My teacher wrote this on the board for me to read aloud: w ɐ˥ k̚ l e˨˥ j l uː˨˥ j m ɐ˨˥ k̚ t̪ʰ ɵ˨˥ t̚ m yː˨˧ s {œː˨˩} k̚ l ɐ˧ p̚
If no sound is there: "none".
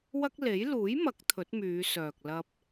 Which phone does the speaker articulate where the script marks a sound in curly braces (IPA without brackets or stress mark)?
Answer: œː˨